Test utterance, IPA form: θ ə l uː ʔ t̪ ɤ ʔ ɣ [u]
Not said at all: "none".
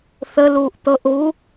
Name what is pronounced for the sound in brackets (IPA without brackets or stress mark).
u